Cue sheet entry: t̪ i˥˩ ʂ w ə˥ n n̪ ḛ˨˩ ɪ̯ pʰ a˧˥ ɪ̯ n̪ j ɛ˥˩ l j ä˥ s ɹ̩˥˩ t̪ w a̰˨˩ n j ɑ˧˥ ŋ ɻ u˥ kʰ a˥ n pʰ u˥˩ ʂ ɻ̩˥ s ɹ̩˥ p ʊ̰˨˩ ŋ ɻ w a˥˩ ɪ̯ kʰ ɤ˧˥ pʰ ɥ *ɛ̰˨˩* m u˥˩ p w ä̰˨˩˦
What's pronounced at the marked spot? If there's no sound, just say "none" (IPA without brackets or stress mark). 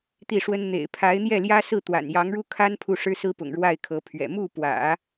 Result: ɛ̰˨˩